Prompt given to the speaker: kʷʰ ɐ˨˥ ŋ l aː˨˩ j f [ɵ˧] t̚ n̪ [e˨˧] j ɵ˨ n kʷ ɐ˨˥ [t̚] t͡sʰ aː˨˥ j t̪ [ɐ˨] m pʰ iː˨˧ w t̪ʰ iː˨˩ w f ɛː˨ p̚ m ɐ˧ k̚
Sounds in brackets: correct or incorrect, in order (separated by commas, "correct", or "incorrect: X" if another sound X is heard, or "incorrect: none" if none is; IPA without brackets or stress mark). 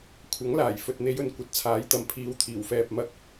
incorrect: ɵ˨, correct, correct, correct